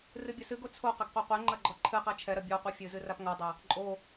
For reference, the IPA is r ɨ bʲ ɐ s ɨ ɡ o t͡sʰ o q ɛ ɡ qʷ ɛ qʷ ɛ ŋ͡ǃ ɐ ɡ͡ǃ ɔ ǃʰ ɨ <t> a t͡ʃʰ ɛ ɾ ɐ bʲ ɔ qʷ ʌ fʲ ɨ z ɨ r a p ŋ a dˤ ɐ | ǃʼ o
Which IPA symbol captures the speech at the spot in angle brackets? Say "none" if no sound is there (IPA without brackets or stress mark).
q